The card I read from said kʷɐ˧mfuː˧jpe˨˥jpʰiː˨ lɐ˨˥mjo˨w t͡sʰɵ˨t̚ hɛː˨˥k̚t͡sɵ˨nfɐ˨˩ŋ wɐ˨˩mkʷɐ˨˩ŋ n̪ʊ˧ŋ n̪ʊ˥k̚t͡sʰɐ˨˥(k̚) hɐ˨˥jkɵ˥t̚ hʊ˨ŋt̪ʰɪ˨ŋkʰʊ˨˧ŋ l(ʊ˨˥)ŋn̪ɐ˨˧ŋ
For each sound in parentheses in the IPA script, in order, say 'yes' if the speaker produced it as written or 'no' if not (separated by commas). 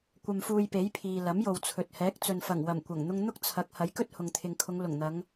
yes, no